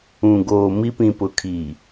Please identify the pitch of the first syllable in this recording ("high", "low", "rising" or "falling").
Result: low